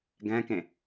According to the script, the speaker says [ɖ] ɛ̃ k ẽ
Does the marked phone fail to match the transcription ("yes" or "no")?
yes